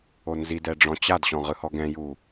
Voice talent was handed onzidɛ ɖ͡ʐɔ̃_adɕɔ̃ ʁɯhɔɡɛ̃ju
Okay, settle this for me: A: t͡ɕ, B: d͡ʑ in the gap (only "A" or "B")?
A